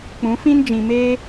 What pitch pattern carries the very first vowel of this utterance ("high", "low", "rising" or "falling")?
rising